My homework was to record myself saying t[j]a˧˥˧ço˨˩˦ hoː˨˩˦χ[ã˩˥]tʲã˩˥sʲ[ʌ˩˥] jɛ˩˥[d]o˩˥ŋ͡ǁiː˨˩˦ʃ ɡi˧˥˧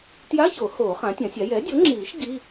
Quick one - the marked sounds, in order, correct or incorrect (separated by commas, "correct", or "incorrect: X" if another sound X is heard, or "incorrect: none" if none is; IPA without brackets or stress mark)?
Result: correct, correct, incorrect: a˩˥, incorrect: dʲ